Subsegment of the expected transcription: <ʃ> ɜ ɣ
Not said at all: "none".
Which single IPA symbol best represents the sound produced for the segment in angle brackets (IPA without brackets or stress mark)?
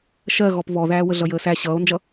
ʃ